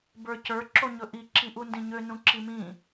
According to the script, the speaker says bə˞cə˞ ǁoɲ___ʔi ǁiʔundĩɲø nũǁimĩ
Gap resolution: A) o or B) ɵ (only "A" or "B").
B